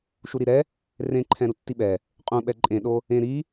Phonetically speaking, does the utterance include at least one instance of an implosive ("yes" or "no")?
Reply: yes